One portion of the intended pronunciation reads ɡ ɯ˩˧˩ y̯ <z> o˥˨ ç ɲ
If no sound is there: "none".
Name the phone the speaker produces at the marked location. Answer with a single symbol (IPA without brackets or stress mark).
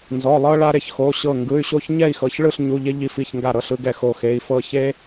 ɕ